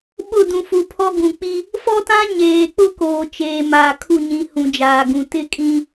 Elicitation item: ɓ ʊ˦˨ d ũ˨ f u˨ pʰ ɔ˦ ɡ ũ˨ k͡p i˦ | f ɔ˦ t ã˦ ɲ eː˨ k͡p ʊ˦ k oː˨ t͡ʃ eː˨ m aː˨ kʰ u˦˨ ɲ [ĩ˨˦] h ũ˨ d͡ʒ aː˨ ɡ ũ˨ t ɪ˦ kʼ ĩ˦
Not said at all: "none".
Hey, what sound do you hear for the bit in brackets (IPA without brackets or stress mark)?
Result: ĩ˨˦